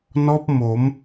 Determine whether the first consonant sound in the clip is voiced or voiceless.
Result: voiced